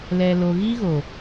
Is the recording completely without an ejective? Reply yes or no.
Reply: yes